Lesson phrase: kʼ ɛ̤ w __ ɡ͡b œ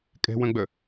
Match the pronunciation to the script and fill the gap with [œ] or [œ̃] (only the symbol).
œ̃